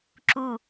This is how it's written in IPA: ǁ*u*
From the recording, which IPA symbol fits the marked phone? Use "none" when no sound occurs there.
u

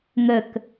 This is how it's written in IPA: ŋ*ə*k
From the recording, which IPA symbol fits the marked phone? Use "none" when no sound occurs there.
ə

